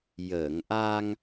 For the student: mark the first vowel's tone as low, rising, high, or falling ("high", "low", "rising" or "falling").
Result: low